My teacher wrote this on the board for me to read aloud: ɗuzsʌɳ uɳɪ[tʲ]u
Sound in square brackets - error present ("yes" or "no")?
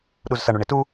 yes